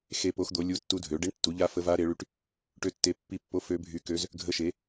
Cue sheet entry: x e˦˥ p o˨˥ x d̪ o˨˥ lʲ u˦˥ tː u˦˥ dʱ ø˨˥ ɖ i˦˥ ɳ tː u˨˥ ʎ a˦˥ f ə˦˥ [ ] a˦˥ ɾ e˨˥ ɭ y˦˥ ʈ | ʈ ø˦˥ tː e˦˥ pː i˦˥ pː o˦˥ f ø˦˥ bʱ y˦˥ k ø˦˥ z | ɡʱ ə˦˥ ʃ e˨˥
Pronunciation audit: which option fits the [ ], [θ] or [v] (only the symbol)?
v